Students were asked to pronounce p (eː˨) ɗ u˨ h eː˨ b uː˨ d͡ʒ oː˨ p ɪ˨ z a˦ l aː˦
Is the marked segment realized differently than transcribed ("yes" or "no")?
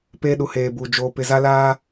yes